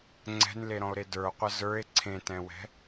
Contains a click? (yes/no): yes